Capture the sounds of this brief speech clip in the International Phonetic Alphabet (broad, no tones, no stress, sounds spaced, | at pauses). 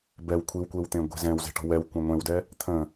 b ɛ w kʷʰ i w kʷ e w t̪ ẽ ɡʷ e̤ z ɛ̃ w z e̤ ʈ ɔ̤ w ɛ w kʷ ẽ ŋʷ ẽ w d ɛ | t̪ʰ ə̃